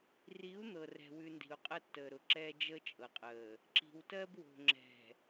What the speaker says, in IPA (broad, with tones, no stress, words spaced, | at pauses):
ri˨˦u̯ n̪ɤ˨rɛ̤˨wʉ˨ ndi̤˨u̯qʼə˦˨tːəː˨ɾʊ˨ ǁɛː˦ d͡ʒəː˦t͡ʃʼɤ˨qʼəː˨ | ǁi̤˨wtɜ˦bwo̤˨ ŋ͡ǁɛ̤˨